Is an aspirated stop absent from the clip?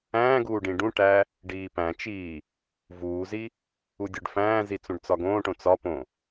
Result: yes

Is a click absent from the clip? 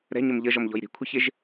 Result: yes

